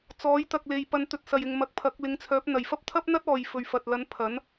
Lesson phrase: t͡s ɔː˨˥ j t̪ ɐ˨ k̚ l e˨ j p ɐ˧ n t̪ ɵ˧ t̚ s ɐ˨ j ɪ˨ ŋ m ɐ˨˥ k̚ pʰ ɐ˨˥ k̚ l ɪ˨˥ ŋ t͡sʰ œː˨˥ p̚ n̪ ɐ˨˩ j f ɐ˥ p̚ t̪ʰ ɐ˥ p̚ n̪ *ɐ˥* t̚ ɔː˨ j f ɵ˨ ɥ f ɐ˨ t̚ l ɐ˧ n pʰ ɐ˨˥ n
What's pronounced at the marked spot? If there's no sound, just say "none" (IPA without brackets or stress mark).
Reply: ɐ˥